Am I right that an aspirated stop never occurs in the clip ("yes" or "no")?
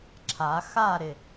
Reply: no